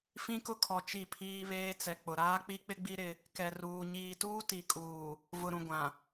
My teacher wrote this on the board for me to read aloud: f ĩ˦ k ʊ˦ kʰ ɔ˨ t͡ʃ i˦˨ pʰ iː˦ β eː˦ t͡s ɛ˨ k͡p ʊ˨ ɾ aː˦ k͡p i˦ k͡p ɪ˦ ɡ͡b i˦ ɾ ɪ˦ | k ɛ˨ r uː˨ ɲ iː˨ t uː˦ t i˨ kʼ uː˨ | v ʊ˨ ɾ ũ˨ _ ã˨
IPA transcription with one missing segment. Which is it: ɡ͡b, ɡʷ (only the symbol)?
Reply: ɡʷ